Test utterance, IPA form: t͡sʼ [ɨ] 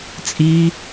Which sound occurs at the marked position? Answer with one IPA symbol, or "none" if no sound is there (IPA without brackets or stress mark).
i